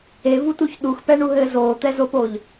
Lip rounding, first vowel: unrounded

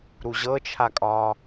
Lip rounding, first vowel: rounded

